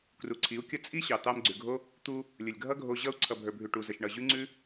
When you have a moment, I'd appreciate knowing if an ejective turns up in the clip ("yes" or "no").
yes